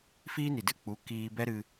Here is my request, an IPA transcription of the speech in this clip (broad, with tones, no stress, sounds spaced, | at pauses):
f iː˦ n i˨ d ɨ˦ k͡p u˨˦ k iː˧ b ɛ˦ ɾ ɨ˧